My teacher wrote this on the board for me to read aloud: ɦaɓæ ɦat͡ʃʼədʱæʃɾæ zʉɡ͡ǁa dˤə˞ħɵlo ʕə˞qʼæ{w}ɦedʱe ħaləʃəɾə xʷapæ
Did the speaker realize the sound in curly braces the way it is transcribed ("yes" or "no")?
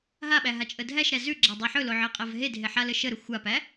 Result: no